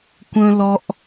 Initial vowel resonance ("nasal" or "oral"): nasal